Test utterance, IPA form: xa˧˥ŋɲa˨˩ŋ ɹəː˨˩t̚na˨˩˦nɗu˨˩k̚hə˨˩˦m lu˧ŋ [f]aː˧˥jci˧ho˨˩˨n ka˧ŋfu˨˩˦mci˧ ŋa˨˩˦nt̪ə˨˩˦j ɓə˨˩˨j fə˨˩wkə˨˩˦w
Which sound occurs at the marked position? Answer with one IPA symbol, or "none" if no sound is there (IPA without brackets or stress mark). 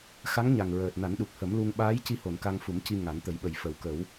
ɓ